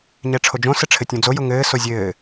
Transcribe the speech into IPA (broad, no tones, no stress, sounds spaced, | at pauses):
ɲ ɛ ʈ͡ʂʰ o d͡ʒ õ s ɘ ʈ͡ʂʰ ɘ tʲ õ d͡z o j ʊ ŋ ɘː s o zʲ ɘː